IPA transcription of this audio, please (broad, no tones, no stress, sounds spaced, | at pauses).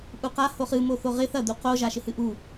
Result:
ʔ u q a h o χ ɨ m o θ o ʁ ɪ θ ɐ d̪ u q o ʒ a ʃ ɪ h ɨ ʔ u